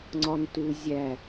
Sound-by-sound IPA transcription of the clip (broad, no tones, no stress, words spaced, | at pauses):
ŋ͡ǀɒntu zʲæ